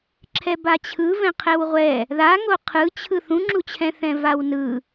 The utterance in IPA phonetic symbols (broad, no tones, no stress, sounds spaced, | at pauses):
ǁʰ ɛ b a t͡ɕʰ ɯ v ɛ̃ qʰ ɛ w ʁʷ ɛ | ð a ŋ o qʰ ɯ t͡ɕʰ ɯ θ ũ ŋ͡ǁ u t͡ɕʰ ɛ̃ θ ɛ̃ v a w n ɯ